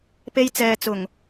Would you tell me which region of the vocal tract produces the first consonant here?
lips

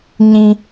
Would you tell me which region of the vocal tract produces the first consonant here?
palate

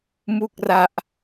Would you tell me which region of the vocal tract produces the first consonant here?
lips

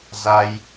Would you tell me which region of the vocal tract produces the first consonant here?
tongue tip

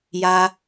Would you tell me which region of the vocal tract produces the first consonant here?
palate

